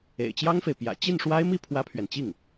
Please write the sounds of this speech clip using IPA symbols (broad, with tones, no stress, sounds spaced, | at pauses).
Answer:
ḛ˨˩ ɪ̯ t͡ɕ j ɑ˥ ŋ f e˨ ɪ̯ p j ä̰˨˩ t͡ɕ i˥˩ n ʂ w a˥ ɪ̯ m i˥ pʰ w ä˥ pʰ ɥ ɛ˨ n t͡ɕ i˥˩ ŋ